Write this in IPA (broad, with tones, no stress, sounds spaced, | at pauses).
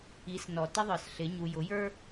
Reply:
i˨˦ s n ɔ˨ t ɪ˦ ðˤ ə˞˨ s ɬ ɪ˨˦ ɲ u˨ j ʊ˨˦ j ə˞˦